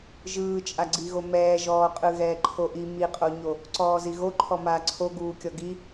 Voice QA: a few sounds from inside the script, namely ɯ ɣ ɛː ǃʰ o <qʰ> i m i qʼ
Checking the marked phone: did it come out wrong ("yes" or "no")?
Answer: yes